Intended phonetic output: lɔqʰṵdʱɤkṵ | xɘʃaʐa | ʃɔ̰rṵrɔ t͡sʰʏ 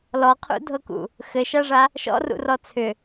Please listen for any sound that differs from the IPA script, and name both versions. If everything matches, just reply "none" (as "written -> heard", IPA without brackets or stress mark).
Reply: none